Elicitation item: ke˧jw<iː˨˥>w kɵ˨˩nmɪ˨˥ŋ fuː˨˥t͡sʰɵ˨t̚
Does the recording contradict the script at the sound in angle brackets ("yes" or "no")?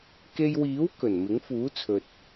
no